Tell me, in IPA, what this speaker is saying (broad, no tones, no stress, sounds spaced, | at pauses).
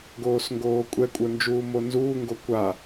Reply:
ɡ oː s ŋ ɡ oː kʷʼ ɛ kʷʼ ə˞ n d͡ʒ uː m o n z uː ŋ ɡ o kʷ a